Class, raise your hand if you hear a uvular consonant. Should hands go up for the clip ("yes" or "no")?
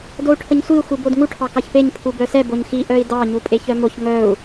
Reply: no